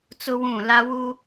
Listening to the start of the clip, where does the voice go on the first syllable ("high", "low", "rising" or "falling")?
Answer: high